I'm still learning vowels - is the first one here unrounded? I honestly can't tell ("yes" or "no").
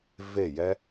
yes